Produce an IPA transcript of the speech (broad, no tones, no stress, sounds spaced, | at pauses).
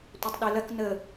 tʷ ɐ tˤ ɗ e l ɐ k n ə